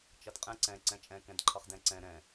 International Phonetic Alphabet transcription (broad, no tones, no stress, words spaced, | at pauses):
t͡ʃʌdqʼɛ̃ ǀɛ̃ ǀɛ̃t͡ʃʼɛ̃ kɛ̃dǃʰʌχdɛ̃ǀɛ̃ ɾɛ̃